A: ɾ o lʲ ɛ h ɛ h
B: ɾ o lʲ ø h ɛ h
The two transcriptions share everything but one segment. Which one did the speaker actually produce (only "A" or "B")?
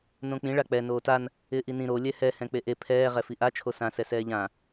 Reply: A